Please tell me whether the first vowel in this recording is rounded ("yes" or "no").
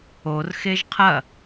yes